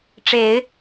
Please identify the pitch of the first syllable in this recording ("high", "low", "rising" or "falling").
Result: rising